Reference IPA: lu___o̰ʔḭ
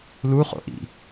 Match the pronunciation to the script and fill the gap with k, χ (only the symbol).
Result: χ